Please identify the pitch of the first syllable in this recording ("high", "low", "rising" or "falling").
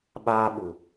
high